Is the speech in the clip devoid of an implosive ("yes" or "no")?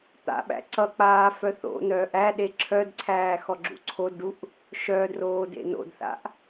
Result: no